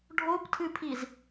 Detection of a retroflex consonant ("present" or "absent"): present